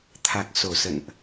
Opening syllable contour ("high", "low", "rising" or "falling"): low